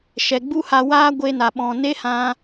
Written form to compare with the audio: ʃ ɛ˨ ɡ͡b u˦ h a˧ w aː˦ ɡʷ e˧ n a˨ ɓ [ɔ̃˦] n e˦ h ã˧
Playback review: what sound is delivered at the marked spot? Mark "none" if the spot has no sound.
ɔ̃˨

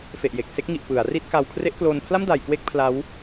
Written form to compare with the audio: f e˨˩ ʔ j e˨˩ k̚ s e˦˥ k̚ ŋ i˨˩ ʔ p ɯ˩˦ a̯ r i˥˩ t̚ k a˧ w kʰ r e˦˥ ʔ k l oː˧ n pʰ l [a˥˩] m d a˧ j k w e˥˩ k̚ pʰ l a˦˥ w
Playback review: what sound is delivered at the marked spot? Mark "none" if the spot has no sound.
a˥˩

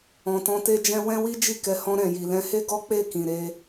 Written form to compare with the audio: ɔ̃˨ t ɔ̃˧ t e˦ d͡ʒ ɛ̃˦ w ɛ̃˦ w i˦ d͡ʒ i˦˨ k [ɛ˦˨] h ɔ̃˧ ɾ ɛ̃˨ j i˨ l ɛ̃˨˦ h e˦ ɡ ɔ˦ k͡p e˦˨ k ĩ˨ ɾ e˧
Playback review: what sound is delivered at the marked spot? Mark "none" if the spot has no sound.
ɛ˨˦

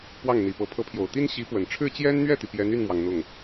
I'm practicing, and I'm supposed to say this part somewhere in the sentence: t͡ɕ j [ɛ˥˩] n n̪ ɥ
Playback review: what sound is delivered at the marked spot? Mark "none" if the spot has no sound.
ɛ˥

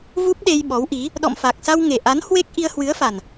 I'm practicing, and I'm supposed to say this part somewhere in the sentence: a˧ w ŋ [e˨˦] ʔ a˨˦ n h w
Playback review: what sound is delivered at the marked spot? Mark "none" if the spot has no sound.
e˨˩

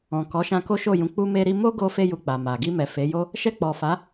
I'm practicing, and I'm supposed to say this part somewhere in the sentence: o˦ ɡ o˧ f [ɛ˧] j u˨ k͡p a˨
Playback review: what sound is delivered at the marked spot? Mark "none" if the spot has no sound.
e˧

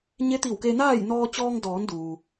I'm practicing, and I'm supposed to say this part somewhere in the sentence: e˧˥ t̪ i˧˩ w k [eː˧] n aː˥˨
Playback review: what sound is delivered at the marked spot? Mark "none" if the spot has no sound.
e˧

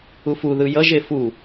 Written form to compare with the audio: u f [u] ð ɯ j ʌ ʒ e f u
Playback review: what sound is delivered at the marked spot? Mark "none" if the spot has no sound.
u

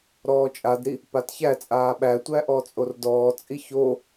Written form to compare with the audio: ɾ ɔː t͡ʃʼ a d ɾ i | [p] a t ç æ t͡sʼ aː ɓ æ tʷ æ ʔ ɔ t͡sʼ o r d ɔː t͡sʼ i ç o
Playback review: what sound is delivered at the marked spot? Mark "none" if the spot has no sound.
p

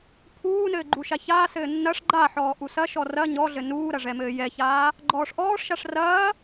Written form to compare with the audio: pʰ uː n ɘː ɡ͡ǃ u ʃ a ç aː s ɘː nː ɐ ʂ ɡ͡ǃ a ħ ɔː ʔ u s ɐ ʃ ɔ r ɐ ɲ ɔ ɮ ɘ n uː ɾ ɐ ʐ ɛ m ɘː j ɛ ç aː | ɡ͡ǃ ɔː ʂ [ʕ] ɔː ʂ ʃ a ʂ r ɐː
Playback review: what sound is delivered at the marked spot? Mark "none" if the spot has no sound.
ʔ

